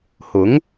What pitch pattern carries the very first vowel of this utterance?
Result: rising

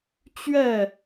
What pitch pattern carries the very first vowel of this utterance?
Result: falling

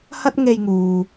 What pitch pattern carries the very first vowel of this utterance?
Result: high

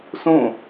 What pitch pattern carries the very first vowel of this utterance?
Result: falling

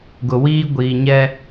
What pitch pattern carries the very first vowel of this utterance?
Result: low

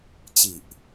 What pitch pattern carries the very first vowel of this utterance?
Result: low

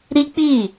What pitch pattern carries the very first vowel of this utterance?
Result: high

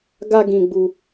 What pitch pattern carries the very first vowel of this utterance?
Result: high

